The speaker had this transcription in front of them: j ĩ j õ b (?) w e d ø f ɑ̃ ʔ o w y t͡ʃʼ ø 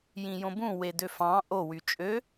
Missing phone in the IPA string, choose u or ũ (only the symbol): ũ